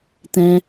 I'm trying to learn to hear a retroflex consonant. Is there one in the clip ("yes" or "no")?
no